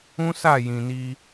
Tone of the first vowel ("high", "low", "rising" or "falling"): high